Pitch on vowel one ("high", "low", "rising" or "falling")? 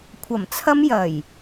low